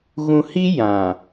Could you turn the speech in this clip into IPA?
ɣ ũ˨ h i˦ j ã˨

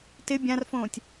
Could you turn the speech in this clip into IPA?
t ɪ bʲ ã r f õː tʲ

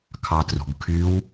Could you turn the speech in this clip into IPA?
kʰ ɑ t r ṳ ɡ kʰ y w

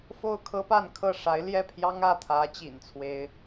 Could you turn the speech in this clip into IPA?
f o˥˩ ʊ̯ kʰ ɤ˥ p a˥˧ n kʰ ɤ˥˩ ʂ a˧˥ ɪ̯ l j ɛ˥˩ pʰ j ɑ˥ ŋ ä˥˩ t̪ʰ ä˧˥ t͡ɕ ḭ˨˩ n t͡sʰ w e˧˥ ɪ̯

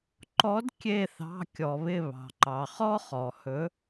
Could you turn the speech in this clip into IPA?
ǃ ɔ˨˦ d kʲ e˧˩ θ ɑ̤˩˧˩ kʲ ɔ˩ β ɪ˧˩ β ɑ̤˩ ǃ ɑ˩ χ ɔ˥ χ ɔ˩ h ɵ˨˦

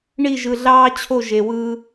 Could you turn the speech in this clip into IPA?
ɳ i˦˨ ʒ ɯ˨ ɮ ɑː˦ t͡ɕʰ o˦˨ ʒ e˨ w ɯː˦

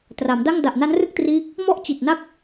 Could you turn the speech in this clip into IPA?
t r a˩˦ m d a˥˩ ŋ d a˨˩ ʔ n a˦˥ n r ɯ˥˩ k̚ t r iː˦˥ k̚ | m ɔ˥˩ ʔ t͡ɕ i˨˩ t̚ n a˥˩ k̚

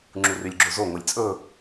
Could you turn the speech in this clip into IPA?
ŋ͡ǁ u r y lʲ ɡ͡ǁ o z o ŋʷ e lʲ t͡sʼ ɵ

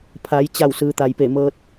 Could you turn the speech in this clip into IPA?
pʰ a˩˧ j t͡ɕ a˧˩ w s ɯː˩ t̪ a˩ j p e˧˩ m ɤː˧ t̚

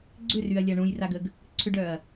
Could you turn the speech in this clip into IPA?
ɡ͡ǀ ʏ r y ɐ̯ lʲ a ɳ ũ j r a ɡ ə ɡ | ǀʰ ʏ ɖ œ ɐ̯

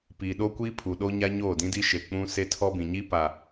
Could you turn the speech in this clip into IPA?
p iː˨ ɗ o˦ kʷ iː˦ pʰ u˨ ɗ o˦ ɲ a˦ ɲ oː˦˨ d ĩ˦ d i˦ ʃ e˨ k͡p ũ˦ s e˦ tʰ ɔ˦ b ĩ˨ ɲ i˦ p a˨

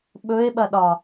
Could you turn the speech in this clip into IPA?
ɓ ɵ e̯ ɓ ɐ ɗ ɒ

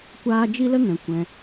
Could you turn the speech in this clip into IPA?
kʷ aː˧ d͡ʒ i˦ l ə˦ ŋ ɛ̃˨ kʷ ɛ̃˧

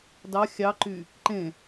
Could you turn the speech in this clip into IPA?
d ɑ xʲ ɑ ǃ y | ǃ ẽ

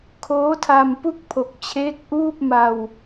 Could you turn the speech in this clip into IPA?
kʰ oː˦˥ tʰ a˧ m p u˥˩ k̚ pʰ o˨˩ k̚ t͡ɕʰ eː˦˥ k̚ ʔ uː˥˩ p̚ m a˧ w

